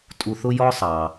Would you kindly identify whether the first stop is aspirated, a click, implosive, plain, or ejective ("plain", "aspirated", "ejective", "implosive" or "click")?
ejective